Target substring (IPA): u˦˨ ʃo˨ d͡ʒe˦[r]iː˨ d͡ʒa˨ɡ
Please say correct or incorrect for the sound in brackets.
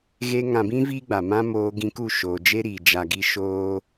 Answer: incorrect: ɾ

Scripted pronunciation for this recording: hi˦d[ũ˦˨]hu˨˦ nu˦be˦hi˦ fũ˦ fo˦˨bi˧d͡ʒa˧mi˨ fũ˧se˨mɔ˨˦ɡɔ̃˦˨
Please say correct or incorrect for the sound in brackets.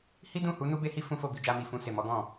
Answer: correct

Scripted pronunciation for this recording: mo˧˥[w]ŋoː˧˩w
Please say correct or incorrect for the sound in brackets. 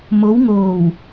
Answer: correct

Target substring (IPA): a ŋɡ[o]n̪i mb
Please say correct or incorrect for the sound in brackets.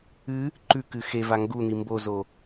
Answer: incorrect: u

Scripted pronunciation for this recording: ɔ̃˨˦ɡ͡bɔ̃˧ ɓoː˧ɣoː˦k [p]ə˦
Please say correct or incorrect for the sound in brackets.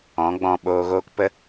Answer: correct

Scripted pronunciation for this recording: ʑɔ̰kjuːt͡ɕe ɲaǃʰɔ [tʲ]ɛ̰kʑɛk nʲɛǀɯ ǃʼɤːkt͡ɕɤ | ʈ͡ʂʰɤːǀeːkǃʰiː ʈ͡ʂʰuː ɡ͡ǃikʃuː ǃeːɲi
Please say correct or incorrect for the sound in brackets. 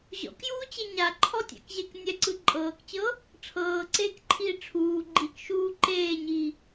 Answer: correct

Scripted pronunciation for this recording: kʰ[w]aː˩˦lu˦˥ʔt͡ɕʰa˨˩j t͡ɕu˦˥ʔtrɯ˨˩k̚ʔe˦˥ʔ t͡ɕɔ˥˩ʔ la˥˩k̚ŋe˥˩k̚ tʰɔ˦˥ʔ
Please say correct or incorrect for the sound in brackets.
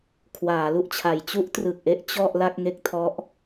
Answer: correct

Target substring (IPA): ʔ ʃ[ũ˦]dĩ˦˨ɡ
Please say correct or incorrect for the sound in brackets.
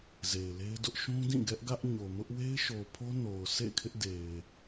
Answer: correct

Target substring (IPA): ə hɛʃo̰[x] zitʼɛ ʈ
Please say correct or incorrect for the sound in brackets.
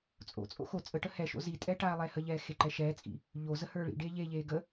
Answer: incorrect: none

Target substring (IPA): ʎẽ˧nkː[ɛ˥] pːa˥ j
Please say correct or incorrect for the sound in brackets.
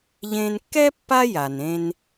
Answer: correct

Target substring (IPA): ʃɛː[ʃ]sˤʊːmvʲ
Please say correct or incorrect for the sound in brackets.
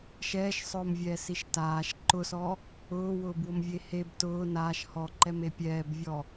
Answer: correct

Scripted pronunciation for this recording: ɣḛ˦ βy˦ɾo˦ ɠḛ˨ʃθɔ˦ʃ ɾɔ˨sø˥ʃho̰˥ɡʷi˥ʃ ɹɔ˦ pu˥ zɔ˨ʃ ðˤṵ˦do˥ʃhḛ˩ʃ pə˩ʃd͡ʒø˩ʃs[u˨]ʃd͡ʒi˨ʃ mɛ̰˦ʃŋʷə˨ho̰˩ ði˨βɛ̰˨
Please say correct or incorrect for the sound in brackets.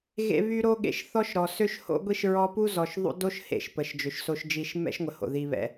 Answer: incorrect: o˨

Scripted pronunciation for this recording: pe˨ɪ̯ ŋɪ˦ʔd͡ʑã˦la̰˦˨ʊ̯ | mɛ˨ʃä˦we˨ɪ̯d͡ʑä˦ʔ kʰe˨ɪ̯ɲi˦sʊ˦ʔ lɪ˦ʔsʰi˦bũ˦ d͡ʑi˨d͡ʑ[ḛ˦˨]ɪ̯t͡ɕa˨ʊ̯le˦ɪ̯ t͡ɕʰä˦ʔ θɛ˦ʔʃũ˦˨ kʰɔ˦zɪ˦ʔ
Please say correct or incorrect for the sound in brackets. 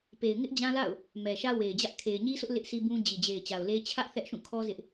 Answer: incorrect: e˨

